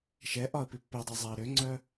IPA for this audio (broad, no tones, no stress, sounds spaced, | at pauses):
ʃ ɛ ʔ ɒ ə̯ p i pː ø dˤ i zˤ ɛ ə̯ ɾ ø ŋ͡ǀ œ